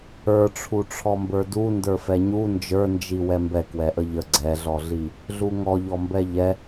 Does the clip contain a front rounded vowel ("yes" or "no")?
no